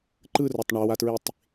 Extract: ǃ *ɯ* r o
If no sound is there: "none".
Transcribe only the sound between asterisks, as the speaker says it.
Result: ɯ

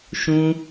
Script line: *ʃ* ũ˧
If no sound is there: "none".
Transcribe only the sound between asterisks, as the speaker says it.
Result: ʃ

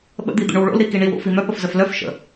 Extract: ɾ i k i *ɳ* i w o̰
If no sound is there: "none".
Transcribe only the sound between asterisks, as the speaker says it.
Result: ɳ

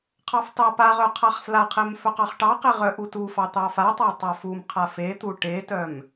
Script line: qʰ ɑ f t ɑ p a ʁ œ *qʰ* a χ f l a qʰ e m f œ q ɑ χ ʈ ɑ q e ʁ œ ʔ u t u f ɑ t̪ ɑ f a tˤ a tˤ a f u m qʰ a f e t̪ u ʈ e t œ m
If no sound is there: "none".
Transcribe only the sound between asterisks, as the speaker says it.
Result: qʰ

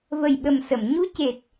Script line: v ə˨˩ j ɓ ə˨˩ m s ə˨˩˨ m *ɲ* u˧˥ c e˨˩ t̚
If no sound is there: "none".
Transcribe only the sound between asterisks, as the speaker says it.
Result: ɲ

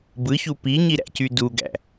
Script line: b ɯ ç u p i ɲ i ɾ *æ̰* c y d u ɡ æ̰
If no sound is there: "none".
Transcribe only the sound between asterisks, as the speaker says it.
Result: æ̰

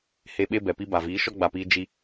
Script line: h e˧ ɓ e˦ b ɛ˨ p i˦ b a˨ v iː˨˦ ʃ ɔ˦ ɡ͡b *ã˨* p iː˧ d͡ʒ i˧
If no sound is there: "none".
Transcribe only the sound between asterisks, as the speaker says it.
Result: a˨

